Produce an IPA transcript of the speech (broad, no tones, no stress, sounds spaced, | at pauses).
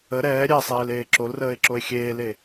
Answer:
ə ɾ ɛː ɾʲ ɛ sˤ eː l eː ǁ o l r əː e̯ ǁ o e̯ xʲ eː l e